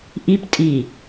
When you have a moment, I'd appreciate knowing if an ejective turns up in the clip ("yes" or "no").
yes